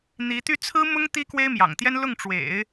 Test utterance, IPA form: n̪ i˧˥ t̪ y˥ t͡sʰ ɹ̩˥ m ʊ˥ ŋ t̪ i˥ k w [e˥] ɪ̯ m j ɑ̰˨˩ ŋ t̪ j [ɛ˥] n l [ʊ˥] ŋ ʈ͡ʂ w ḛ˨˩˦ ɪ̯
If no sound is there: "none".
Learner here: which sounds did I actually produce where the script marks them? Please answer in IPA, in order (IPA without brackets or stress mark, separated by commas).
e˥, ɛ˥, ʊ˥˩